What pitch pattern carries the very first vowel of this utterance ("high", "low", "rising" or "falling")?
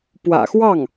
low